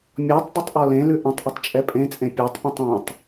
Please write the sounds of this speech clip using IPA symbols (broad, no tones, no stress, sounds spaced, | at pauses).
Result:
mʲ ɔ tˤ dˤ ʏ tˤ ʔ ɔ l ẽ l ʉ ʔ ə̃ tˤ ʔ ə tˤ t͡ʃʼ ɛ pʼ ẽ t͡sʼ ẽ pʲ a tˤ pʲ ə̃ tˤ ẽ tˤ